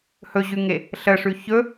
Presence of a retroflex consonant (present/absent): present